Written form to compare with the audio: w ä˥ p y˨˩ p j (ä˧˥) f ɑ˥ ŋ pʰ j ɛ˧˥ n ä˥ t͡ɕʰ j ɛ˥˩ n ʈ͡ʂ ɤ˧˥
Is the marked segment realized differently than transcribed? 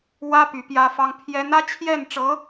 yes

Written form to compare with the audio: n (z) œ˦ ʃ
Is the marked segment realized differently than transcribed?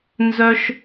no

